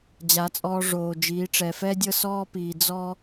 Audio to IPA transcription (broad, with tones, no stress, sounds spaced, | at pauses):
d͡ʑ a˨˦ t͡sʼ ɔː˧ ʐ oː˨ d͡ʒ iː˨˦ ʈ͡ʂ ɛ˨ f ɛ˦ dʲ ɤ˦ s ɔː˦ p iː˨ d͡z ɔ˦